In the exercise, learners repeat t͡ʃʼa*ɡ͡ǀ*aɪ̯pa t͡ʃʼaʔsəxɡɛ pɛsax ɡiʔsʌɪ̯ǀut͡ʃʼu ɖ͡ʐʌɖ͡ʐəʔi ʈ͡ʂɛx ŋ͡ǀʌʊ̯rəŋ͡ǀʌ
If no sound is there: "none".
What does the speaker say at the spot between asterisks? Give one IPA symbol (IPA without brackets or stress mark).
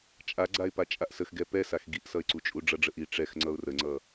ɡ͡ǀ